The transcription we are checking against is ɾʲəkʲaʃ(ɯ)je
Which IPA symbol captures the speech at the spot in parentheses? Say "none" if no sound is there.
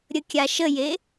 ə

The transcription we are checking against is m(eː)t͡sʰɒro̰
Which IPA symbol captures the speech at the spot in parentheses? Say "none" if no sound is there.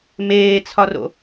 eː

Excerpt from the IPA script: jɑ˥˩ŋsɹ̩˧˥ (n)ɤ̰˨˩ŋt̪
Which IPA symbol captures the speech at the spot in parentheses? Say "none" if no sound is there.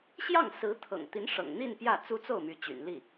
t̪ʰ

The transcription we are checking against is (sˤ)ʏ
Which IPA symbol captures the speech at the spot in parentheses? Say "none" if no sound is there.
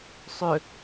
sˤ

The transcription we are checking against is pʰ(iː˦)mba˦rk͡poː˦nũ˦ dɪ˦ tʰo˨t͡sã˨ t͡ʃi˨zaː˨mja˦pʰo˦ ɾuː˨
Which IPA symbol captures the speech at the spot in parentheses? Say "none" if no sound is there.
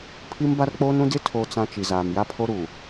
i˦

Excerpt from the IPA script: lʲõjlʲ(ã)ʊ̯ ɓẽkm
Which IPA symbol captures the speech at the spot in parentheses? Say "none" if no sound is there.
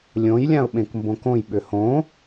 ã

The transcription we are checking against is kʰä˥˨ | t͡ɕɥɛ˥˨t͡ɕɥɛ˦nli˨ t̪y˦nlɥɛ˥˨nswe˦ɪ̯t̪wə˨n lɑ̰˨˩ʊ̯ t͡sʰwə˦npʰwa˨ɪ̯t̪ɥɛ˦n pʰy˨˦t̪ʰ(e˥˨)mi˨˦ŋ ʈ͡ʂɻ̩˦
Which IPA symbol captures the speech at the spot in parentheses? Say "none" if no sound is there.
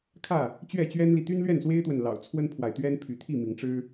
i˥˨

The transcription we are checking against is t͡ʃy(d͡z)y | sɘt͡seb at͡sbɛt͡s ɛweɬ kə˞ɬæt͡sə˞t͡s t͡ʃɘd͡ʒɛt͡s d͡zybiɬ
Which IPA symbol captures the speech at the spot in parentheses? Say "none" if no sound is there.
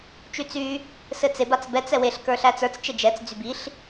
t͡s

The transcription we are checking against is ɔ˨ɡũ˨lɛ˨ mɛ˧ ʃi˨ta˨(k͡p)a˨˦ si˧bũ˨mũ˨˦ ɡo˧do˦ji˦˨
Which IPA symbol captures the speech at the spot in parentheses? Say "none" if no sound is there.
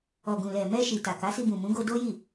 k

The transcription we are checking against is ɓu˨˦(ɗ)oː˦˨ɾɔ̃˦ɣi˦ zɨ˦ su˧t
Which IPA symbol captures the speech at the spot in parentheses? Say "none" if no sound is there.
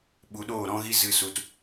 ɗ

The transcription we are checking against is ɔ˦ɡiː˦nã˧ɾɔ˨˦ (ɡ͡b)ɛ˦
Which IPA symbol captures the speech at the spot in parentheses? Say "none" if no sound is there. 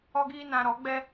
ɡ͡b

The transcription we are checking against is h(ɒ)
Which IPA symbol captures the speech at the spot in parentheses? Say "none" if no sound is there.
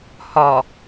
ɒ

